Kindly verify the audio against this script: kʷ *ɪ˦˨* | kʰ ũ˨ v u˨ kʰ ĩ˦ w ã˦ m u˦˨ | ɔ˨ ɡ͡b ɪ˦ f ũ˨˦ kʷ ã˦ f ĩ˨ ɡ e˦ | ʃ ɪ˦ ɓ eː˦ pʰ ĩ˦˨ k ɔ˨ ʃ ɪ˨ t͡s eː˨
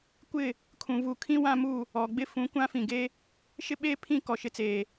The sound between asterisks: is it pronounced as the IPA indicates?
yes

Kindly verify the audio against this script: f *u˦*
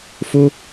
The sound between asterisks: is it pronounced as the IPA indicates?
no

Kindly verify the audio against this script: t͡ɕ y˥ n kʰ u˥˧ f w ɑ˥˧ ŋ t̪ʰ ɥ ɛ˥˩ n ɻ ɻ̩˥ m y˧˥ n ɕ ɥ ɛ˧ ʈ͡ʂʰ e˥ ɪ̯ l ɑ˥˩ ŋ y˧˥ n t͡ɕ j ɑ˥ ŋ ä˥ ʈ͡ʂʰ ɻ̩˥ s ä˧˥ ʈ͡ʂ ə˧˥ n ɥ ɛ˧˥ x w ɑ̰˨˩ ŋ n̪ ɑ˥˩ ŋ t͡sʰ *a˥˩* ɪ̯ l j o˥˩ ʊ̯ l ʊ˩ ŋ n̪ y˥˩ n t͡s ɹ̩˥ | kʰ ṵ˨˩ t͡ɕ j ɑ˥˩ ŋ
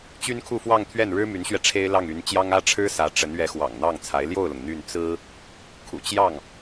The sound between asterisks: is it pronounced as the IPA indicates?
no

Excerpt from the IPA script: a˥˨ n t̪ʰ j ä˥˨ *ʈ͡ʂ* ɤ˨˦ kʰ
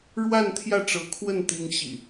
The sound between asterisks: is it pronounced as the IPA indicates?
yes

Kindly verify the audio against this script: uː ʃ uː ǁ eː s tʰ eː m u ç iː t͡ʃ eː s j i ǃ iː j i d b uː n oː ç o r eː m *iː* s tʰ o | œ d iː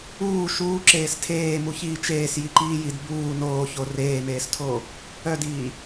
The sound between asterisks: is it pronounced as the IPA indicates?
no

